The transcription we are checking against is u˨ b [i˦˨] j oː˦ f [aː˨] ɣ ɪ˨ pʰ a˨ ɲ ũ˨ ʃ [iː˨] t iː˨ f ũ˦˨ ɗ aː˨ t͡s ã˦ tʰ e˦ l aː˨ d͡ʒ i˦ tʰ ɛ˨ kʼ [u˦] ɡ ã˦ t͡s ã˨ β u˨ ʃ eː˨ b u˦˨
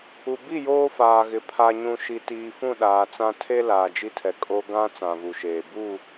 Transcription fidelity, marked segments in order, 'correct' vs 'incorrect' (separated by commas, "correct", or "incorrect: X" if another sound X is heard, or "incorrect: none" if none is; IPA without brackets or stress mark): correct, correct, incorrect: i˨, incorrect: o˦